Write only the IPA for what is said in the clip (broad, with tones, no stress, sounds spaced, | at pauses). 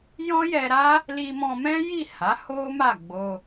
j ɔ̃˦ j ɛ˧ ɾ a˦ | l i˧ m ɔ̃˧ m ɛ̃˦ j i˦˨ h a˨˦ h o˦ m a˦˨ ɡ͡b o˧